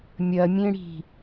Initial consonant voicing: voiced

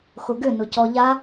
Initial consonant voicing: voiceless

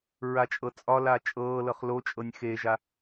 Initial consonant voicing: voiced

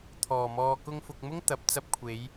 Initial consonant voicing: voiceless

